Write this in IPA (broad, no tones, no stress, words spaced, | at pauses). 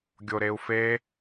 ɡʲoɾeu̯fe